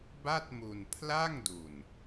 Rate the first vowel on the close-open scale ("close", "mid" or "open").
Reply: open